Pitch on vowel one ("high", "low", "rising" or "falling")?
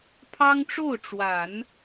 high